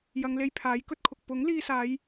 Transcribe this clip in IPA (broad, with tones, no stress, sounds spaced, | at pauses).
j ɐ˨˧ ŋ l e˧ j pʰ aː˨˥ j k ɵ˥ t̚ kʰ ʊ˨ k̚ p ʊ˨˥ ŋ l iː˧ s aː˨˧ j